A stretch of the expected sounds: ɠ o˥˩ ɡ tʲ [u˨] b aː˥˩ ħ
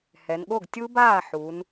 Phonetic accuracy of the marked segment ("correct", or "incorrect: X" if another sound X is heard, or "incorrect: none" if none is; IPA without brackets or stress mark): incorrect: u˦˥